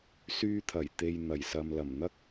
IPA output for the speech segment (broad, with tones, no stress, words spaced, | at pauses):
syː˧t̪ʰɐ˨˩jt̪e˨j n̪ɐ˨˩jsɐ˨mlɐ˨˩m n̪ɐ˥k̚